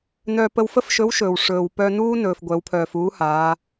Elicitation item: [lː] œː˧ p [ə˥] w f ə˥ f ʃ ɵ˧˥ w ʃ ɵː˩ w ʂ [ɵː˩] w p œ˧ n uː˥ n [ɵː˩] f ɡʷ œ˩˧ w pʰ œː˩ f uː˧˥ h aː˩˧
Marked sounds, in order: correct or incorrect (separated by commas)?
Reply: incorrect, incorrect, correct, correct